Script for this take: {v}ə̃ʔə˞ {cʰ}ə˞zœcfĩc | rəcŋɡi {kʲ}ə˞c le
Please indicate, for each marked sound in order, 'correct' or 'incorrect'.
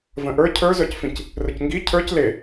correct, correct, incorrect: cʰ

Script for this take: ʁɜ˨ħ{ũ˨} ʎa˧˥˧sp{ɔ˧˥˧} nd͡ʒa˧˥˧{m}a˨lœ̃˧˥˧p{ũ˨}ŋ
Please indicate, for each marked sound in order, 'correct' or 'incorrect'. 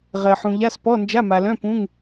correct, correct, correct, incorrect: ũ˧˥˧

